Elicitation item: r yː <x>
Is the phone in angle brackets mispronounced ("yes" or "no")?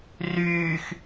no